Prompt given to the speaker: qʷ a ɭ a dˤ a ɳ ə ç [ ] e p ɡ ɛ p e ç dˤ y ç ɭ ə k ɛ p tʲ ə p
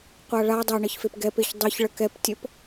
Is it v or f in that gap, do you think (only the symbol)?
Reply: f